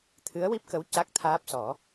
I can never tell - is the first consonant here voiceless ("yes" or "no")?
yes